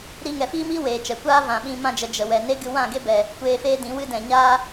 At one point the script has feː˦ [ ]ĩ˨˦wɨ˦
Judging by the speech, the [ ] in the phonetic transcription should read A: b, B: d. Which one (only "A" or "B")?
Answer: B